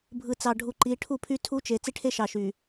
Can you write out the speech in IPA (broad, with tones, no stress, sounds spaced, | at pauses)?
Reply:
bʱ ɯ˨ t͡s ɑ˨ ɖʱ u˨ ǃ i˨˦ ʈʰ u˦˨ pʰ y˦ tʰ u˦ t͡ʃ e˨ t͡s i˦ ʈʰ e˦ ʃ ɑ˨ ʃ y˨